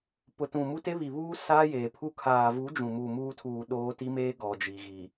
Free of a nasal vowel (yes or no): no